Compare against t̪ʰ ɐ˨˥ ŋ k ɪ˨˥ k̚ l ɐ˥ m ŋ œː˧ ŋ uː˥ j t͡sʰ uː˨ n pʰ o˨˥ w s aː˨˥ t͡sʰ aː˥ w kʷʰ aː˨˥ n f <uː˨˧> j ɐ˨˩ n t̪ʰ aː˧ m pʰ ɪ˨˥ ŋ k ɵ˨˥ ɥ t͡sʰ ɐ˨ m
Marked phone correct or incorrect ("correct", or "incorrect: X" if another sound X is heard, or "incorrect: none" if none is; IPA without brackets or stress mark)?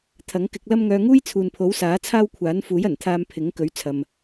incorrect: uː˨˥